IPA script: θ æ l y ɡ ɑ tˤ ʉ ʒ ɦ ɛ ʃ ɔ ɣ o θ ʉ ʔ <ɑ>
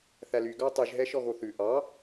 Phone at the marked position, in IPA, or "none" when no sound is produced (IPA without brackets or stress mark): ɑ